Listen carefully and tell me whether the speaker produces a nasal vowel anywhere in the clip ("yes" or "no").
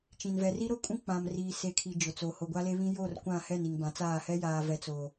yes